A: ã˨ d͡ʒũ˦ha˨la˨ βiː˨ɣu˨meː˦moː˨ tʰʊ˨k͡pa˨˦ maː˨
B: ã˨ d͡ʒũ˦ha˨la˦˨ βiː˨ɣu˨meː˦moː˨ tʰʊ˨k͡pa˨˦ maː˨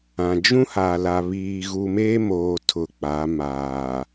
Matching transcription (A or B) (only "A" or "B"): A